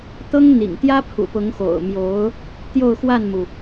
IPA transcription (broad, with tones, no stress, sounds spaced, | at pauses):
t̪ ɤ˥ ŋ n̪ ḭ˨˩ ŋ t̪ j ä˥ pʰ ṵ˨˩ p ʊ˧˥ ŋ x o̰˨˩ ʊ̯ m j o˧˥ ʊ̯ | t̪ j o˥˧ ʊ̯ x w a˥˩ n m u˩